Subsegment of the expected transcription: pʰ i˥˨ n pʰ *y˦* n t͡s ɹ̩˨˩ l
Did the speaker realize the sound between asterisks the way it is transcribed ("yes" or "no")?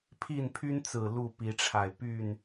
yes